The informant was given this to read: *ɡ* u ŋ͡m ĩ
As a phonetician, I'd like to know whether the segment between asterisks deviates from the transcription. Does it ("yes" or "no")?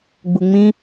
yes